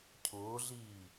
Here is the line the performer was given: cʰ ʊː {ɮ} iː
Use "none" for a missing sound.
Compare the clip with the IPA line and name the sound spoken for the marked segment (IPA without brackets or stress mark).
ɮ